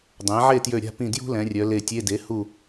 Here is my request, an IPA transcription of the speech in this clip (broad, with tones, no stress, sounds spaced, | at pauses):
dˤ ɛ̃˩˥ ʕ e˥˨ t j ø˧˩ ɾʲ a̤˥˨ p ĩ˧˩ d j ṳ˥ l ɛ̃˩˧ rʲ œ˩˧ l e˧˩ tʲ e˧˥˧ d e˩˥ h u˧˩